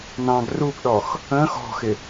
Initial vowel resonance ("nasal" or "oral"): nasal